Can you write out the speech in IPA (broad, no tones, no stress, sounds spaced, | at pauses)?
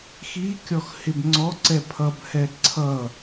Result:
x i kʲ ɔ x h ɪ b ŋ͡ǀ ɔ ǀ ɛ pʰ ʌ b h ɛ ǀʰ ʌ